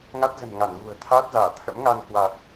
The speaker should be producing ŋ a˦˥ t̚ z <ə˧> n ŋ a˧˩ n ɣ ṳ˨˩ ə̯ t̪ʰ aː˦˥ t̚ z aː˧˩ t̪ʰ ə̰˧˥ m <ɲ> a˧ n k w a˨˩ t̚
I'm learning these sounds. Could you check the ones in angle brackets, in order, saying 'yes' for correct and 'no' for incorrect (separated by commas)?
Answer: no, no